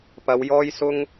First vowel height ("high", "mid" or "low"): low